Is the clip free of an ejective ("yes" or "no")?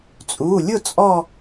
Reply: no